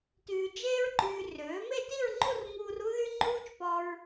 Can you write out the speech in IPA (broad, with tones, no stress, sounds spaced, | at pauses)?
t yː˧ d͡ʒ eː˥ ɹ ǃ yː˧ r øː˩˥ m e˥˧ t i˥˧ ɹ ŋ͡ǃ u˥˧ r ŋ uː˧ r u˥ ð y˥ ŋ͡ǃ uː˥ t͡ʃ p ɔ˧ ɹ